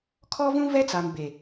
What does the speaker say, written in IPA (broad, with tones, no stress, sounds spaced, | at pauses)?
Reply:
kʰ ɔ˦ v ũ˦ v ɛ˦ t͡s a˨ m b e˨